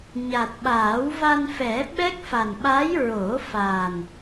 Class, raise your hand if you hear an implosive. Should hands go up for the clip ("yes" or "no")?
yes